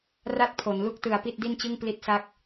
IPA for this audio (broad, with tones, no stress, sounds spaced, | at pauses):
r a˥˩ t̚ pʰ o˩˦ n l u˥˩ k̚ t ɯ˩˦ a̯ p i˥˩ t̚ d i˥˩ n t͡ɕ ɯ˥˩ ŋ p l i˦˥ t̚ s a˦˥ k̚